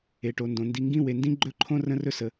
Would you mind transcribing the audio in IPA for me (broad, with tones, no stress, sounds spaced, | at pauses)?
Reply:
e˨ ʈ o˨ n d õ˨ n d i˨ ŋ ɡ ĩ˦ w e˨ n d ĩ˦ ɡ͡ǃ ɵ˦ ǃʰ õ˦ r ə̃˦ r ɵ˦ s ə˨